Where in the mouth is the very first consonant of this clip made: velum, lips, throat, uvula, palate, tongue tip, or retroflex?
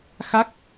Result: velum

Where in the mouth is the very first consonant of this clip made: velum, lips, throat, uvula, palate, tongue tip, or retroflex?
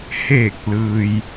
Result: throat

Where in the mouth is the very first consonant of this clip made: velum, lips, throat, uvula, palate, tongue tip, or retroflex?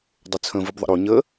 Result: tongue tip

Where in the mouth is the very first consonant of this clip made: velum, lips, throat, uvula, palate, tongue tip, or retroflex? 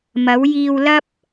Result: lips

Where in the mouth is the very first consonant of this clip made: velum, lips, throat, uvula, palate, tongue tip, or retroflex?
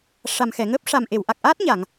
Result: retroflex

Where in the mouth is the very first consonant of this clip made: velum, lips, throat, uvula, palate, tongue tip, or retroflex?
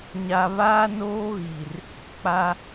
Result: palate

